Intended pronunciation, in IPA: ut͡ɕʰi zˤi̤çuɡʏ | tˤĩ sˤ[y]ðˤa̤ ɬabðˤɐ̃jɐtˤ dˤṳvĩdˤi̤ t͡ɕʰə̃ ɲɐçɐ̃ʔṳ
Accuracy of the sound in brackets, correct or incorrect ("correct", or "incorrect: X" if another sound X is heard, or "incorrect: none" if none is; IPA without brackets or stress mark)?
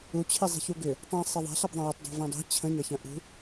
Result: incorrect: i